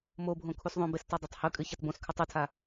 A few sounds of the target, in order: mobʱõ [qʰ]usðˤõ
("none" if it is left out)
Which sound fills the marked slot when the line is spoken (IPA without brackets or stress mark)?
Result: kʰ